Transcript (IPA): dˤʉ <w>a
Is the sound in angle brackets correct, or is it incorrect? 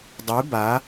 incorrect: b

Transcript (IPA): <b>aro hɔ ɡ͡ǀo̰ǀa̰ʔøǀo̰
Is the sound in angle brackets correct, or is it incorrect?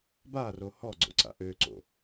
correct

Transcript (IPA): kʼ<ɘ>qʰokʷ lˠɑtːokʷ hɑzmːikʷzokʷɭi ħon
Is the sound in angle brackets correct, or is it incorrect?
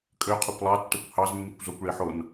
incorrect: ø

